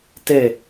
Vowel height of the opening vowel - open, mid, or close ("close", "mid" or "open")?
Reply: mid